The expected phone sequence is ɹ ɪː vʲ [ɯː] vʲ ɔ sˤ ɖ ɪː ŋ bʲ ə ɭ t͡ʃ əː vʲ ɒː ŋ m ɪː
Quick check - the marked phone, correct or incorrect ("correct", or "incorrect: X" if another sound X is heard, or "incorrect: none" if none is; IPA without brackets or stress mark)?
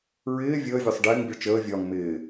incorrect: əː